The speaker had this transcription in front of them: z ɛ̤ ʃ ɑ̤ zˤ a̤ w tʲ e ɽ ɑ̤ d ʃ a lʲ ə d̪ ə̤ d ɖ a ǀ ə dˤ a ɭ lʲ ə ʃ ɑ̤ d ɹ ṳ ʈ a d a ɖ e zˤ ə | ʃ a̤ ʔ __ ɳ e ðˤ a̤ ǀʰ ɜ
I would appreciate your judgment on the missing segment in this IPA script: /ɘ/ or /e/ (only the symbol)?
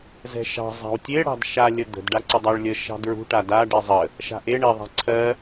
e